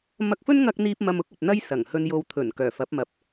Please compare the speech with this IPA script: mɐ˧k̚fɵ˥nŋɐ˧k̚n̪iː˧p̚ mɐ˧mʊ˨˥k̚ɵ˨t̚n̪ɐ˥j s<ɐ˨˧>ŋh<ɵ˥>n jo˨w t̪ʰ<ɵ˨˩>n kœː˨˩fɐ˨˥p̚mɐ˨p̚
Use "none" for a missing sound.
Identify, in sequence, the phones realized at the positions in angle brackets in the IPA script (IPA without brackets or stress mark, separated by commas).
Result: ɐ˨˩, ɵ˧, ɵ˨˩